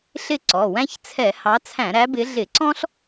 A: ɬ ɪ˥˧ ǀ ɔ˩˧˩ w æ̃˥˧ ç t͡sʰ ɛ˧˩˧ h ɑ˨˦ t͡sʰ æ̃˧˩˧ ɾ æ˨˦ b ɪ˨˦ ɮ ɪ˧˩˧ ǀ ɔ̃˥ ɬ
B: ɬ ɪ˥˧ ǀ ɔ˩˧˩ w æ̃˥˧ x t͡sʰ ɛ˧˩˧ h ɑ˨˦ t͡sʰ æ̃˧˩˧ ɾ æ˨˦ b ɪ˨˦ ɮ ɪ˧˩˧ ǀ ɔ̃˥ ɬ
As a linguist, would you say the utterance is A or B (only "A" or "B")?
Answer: A